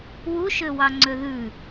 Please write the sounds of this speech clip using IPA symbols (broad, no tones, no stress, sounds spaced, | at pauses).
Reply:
w u ʃ ø w ɑ ŋ͡ǀ ø ð ʉ